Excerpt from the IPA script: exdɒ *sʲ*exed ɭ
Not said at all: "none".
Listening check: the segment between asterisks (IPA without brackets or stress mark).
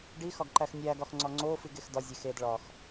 zʲ